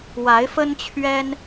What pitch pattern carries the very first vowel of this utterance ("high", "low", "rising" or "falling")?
rising